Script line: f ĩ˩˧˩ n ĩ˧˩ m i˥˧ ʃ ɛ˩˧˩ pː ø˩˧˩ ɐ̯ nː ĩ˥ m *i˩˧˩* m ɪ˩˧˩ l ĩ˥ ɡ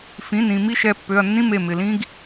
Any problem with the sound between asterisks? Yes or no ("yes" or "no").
yes